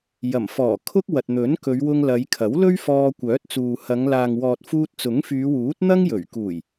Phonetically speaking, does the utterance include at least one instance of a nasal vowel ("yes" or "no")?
no